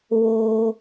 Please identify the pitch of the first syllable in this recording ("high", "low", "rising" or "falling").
low